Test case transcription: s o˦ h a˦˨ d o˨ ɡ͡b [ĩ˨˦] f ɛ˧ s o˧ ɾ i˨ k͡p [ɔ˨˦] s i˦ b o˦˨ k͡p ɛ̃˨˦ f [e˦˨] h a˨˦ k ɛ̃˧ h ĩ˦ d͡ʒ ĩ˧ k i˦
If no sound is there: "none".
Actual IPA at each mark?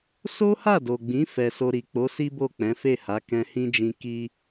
ĩ˨˦, o˨˦, e˦˨

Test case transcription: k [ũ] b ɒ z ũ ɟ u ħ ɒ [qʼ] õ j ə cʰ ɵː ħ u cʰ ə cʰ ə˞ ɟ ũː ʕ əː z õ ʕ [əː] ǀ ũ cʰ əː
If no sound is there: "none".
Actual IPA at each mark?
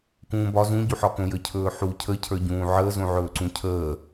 ũː, k, ɵː

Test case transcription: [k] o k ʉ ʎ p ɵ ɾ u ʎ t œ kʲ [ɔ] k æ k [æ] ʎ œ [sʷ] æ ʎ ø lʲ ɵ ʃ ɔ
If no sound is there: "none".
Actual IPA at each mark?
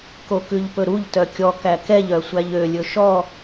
k, ɔ, ɛ, sʷ

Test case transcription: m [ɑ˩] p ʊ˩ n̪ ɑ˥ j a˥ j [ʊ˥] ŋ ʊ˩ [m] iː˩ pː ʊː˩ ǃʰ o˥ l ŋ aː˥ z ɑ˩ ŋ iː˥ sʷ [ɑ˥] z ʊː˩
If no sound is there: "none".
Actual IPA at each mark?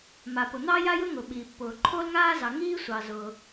a˩, ʊ˥, ɓ, ɑ˩

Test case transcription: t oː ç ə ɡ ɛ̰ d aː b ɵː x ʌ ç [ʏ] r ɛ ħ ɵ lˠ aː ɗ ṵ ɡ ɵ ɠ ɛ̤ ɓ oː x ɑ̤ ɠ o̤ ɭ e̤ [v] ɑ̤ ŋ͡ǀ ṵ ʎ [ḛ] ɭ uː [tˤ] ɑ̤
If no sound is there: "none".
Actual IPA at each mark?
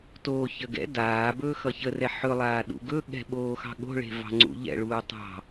ə, v, ɛ̰, tˤ

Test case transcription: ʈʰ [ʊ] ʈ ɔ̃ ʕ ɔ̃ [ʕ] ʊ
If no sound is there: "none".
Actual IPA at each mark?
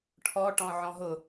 ɔ, ɦ

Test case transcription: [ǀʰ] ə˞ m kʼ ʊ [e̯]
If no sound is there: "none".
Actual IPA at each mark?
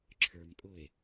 ǁʰ, e̯

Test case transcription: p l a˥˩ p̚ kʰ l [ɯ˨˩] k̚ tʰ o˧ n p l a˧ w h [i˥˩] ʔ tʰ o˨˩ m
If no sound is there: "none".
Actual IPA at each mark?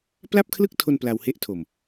ɯ˥˩, e˥˩

